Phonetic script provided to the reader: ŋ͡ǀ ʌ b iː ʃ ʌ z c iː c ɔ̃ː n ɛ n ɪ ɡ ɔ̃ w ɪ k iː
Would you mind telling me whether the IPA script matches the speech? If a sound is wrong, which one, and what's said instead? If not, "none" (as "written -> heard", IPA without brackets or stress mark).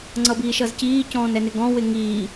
k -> ŋ